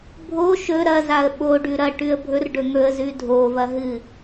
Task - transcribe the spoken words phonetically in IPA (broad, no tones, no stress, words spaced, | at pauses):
bʱo ʃɵ ɾɐzaə̯ ɓoɖʉ ɾɐ ʈʉə̯bʱɵr ɖɵŋɵə̯ zʉdʱovɐɦɨ